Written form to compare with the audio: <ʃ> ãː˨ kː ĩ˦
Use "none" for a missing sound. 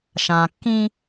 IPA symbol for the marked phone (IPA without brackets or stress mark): ʃ